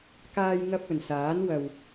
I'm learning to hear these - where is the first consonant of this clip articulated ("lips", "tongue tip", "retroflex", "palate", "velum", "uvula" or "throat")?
velum